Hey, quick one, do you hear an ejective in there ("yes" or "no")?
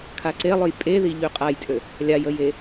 yes